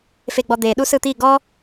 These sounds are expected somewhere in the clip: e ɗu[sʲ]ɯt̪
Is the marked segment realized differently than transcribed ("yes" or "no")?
yes